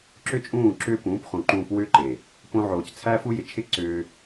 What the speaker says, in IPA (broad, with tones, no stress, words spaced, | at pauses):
ǁʏ˦t͡ʃʼũː˦˨ ǁʏː˦ pũː˨˦pχũ˨ǃũː˧p wʏː˦ǃe˨ | põ˧ʕoː˨c t͡sʰæ˦fu˦jɪ˨ t͡ʃʰɪ˦ǀʏː˧